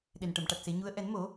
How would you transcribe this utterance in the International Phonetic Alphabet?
ɗ e˨˩ n ʈ ə˨˩˨ m ʈ a˨˩ t̚ s e˨˩˦ ɲ u˧˥ ə̯ ʔ ɛ˨˩˦ n m o˨˩˦

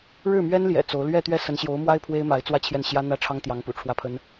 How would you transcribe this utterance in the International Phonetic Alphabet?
ɻ ɻ̩˥˩ m ɥ ɛ˥ n l j ɛ̰˨˩ t͡s o˧˥ ʊ̯ l ɥ ɛ˥˧ t̪ ɥ ɛ˥˩ s ə˧˥ n ɕ j o˧˥ ʊ̯ m w a˥ ɪ̯ pʰ w e˥ ɪ̯ m a˧˥ ɪ̯ t͡s w ä˥˧ t͡ɕʰ j ɛ˥˩ n ɕ j ä˥ n̪ ä˥˩ ʈ͡ʂʰ ɑ˥ ŋ t̪ j ɑ˧˥ ŋ p ṵ˨˩ ʈ͡ʂʰ w ä˥˩ pʰ ə˥ n

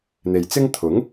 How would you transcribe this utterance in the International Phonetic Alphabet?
n̪ e˨ j t͡s ɪ˥ ŋ t̪ʰ ʊ˨˥ ŋ

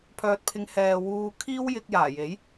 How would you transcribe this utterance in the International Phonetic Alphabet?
pʰ œː˧ t̚ pʰ ɪ˧ ŋ h ɛː˨ w uː˧ kʰ iː˥ w j ɪ˧ k̚ j aː˨˩ j e˨˥ j

